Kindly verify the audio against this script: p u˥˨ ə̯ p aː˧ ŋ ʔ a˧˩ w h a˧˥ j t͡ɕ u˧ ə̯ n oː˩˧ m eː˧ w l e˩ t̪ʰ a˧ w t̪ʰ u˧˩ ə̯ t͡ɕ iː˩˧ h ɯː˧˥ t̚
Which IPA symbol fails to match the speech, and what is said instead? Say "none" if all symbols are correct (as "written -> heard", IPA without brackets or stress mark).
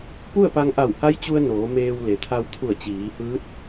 aː˧ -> a˧